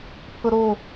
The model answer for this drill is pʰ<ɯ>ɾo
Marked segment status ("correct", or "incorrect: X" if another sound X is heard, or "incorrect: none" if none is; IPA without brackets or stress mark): incorrect: ɤ